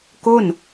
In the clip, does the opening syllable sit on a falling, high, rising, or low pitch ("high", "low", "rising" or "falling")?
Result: falling